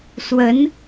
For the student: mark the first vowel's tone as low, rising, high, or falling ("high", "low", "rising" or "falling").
rising